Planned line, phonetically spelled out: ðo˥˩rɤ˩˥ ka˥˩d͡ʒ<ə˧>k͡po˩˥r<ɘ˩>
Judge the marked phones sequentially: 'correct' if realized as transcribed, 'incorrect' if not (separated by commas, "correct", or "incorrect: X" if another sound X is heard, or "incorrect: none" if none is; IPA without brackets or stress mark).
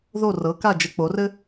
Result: correct, incorrect: ɘ˥